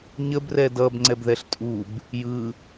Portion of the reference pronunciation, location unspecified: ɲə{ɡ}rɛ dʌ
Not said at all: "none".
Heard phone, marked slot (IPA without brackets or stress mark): b